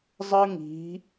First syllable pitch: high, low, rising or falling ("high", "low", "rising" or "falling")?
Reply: high